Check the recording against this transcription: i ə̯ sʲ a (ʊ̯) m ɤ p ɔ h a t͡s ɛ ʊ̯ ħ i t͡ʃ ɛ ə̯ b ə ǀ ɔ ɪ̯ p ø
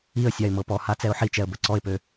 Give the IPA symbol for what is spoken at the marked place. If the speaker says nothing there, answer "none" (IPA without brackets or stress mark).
ɪ̯